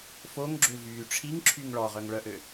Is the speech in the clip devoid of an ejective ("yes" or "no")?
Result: yes